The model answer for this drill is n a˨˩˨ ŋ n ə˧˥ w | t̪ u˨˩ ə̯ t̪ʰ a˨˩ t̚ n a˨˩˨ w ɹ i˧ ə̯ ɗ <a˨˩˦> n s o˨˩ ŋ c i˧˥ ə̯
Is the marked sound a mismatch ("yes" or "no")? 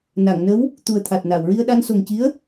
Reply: yes